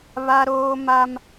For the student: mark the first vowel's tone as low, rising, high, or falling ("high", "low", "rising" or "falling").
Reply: high